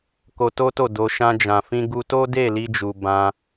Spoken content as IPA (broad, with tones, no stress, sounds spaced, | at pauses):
k o˧ t o˦ t o˦˨ d o˧ ʃ ã˧ d͡ʒ ã˨ f ĩ˧ ɡ u˧ t o˦ d e˦˨ l i˧ d͡ʒ u˨ b ã˧